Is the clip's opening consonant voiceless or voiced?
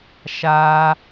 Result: voiceless